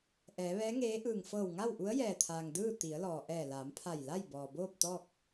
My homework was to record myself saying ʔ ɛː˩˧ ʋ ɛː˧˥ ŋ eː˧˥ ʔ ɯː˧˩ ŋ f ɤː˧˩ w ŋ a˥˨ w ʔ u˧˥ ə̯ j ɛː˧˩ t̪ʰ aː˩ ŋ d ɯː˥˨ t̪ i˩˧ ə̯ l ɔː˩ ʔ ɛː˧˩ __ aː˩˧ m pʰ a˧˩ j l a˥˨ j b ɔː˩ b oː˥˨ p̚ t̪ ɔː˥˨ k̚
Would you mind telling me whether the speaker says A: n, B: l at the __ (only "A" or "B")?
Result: B